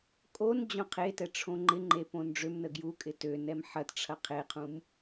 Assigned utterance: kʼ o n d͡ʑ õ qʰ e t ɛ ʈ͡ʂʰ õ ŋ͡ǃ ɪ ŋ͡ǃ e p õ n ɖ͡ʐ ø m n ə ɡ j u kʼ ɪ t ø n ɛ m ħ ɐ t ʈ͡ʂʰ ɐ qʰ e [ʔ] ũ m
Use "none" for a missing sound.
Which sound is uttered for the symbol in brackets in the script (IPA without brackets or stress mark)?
qʰ